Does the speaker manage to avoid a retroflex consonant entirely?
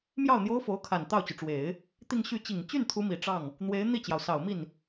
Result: no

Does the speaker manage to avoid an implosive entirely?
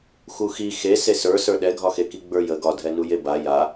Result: no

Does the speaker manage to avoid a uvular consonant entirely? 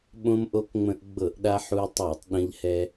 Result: yes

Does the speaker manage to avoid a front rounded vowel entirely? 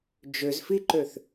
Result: no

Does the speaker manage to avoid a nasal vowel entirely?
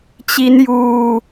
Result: yes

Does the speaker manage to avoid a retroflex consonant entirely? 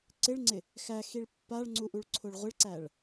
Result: no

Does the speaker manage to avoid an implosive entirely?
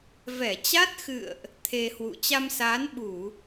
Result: no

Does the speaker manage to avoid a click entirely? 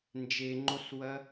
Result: no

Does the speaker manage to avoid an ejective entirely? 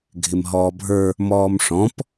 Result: yes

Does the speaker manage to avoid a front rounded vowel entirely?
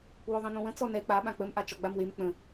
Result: yes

